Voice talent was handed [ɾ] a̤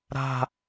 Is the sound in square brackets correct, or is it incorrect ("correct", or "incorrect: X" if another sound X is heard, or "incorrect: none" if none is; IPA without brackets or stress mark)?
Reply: correct